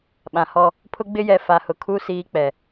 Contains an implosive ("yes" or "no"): yes